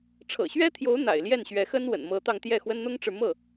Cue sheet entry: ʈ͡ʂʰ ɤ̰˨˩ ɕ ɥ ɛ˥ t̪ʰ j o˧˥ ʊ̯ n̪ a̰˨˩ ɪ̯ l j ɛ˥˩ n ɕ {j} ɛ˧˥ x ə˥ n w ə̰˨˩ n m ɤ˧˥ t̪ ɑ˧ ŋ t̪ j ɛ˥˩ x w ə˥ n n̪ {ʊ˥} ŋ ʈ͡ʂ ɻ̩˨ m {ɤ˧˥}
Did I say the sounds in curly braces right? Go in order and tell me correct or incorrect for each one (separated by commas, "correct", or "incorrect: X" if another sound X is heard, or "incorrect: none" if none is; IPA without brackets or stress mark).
incorrect: ɥ, correct, incorrect: ɤ˥˩